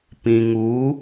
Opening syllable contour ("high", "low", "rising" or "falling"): low